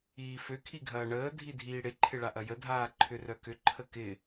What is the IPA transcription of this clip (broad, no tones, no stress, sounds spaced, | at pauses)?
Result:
iː f ø kʰ i ɡʱ ɐː ɳ əː dʱ i dʱ iː ɽ ɪ ǃʰ ɪ ɭ a ʔ ɐ j ə dʱ aː ǃʰ ʏ r œ k ʏ ǃʰ ə k ɪ